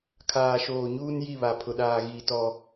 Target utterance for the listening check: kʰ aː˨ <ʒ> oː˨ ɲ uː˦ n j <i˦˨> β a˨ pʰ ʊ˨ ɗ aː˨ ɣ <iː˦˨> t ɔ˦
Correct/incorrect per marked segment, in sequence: incorrect, correct, incorrect

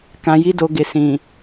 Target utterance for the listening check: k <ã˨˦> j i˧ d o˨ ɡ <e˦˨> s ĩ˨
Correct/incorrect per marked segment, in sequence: incorrect, incorrect

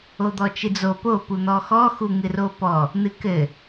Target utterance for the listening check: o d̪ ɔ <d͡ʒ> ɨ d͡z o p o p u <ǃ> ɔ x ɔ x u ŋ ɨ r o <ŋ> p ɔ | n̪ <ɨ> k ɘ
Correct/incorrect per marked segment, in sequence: incorrect, incorrect, incorrect, correct

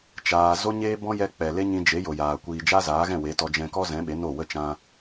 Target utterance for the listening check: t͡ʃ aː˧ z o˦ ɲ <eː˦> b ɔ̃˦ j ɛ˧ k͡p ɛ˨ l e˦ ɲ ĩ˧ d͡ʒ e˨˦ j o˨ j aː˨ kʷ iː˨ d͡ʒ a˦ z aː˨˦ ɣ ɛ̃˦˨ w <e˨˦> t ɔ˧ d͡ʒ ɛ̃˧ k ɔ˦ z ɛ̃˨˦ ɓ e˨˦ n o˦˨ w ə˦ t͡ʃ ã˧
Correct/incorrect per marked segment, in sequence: correct, correct

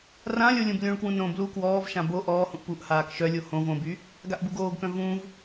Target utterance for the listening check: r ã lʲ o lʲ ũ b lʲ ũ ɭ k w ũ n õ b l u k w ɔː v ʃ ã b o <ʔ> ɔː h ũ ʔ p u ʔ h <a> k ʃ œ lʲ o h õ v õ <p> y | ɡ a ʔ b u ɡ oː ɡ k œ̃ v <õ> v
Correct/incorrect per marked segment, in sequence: correct, incorrect, incorrect, incorrect

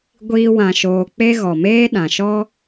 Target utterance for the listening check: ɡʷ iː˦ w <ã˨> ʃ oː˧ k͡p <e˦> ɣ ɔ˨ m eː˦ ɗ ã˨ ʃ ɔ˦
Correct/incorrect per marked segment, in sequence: incorrect, correct

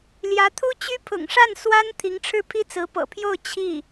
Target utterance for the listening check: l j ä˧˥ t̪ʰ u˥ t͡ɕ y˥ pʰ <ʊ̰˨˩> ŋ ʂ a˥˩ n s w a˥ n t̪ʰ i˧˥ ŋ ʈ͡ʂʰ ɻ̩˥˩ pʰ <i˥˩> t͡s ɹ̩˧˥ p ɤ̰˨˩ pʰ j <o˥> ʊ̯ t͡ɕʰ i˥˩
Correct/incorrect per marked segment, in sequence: correct, incorrect, incorrect

